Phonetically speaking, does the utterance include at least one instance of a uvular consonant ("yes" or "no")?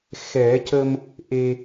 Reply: no